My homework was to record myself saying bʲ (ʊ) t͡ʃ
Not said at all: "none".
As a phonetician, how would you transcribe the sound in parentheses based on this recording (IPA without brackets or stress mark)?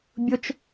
ʊ